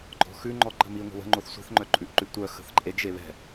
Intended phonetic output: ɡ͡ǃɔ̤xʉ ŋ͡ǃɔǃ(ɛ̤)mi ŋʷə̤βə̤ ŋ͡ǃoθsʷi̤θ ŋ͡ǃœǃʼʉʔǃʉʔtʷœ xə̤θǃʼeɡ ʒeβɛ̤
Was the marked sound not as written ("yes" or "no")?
yes